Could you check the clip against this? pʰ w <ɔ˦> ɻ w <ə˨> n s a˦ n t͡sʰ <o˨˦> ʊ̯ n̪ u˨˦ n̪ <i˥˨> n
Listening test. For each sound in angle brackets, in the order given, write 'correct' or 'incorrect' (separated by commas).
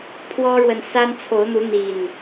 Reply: correct, correct, correct, incorrect